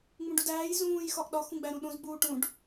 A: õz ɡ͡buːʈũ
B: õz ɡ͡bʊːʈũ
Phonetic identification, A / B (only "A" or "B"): A